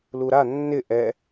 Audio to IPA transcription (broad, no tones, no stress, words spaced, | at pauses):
luɾa nːɪ ʔɛ